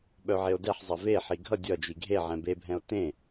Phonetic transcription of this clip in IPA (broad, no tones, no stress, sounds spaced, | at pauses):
ɓ œ ʕ e o̯ d ɛ ħ zˤ ʌ v e ħ i ɡʱ ʌ dʲ ʌ d͡ʒ i ɡʱ e ʕ ɛ̃ b e bʱ ɛ̃ o̯ t ẽ